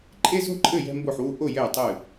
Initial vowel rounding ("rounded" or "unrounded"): unrounded